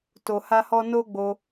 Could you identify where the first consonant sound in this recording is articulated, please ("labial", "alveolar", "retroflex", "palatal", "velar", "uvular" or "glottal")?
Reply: alveolar